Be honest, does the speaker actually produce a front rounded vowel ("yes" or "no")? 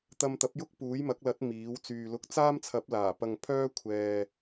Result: yes